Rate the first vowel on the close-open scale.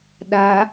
open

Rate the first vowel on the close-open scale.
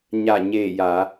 open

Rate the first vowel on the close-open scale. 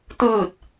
close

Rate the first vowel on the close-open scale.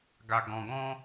open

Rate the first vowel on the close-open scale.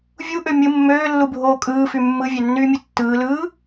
close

